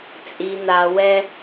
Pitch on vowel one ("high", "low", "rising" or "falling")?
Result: low